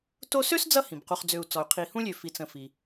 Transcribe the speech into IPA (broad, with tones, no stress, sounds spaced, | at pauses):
t o˦ s ø˥ s d͡z ʌ˦ h ĩ˩ b q u˨ χ d͡z ø˨ u̯ t͡s ɔ˩ y̯ qʰ i˨ h ũ˥ lʲ ø˨ f i˨ t͡s ə̃˨ f i˩